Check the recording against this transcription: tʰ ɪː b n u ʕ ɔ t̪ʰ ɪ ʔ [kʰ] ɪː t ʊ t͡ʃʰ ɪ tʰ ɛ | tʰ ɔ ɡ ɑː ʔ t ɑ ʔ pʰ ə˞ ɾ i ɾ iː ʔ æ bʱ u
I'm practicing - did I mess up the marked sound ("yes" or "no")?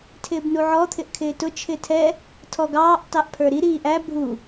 no